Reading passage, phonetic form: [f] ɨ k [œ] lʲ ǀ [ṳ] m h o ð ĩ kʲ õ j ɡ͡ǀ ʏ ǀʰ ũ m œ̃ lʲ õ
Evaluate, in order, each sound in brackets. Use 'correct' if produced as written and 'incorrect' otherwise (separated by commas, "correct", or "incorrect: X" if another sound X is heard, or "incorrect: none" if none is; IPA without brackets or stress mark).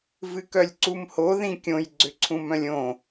incorrect: v, correct, incorrect: u